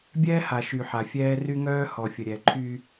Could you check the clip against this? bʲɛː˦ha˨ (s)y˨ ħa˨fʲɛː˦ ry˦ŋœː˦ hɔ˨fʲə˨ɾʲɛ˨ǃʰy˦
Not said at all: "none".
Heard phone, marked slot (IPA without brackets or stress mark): ʃ